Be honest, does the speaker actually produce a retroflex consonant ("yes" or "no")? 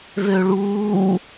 yes